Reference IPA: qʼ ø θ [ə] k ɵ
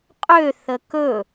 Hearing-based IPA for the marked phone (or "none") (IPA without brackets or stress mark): ə